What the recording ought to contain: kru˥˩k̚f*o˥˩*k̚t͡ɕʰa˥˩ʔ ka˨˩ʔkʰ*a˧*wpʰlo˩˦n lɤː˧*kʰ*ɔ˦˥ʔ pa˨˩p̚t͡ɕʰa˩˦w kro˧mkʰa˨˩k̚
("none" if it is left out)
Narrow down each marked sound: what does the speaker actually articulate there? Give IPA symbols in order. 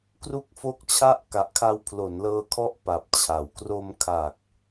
o˥˩, a˧, kʰ

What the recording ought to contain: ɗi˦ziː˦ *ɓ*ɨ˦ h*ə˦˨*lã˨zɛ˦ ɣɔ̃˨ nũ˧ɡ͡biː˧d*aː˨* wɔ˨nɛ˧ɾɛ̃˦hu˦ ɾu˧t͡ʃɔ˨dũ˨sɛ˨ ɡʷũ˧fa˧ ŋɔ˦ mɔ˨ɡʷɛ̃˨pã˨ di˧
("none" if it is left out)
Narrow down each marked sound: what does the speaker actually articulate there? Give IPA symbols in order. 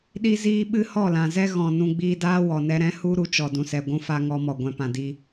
ɓ, ɔ˦˨, aː˦

